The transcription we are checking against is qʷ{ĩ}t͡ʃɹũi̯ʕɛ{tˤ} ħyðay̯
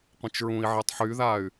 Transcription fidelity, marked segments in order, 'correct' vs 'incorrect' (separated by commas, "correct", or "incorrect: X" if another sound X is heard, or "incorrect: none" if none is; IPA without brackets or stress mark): correct, correct